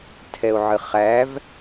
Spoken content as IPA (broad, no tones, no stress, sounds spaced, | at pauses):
tʰ ɛ o̯ ʕ ɨ χ æ v